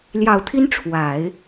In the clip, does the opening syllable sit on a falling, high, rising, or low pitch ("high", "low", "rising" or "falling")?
low